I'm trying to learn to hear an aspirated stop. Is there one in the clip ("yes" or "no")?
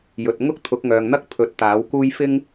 yes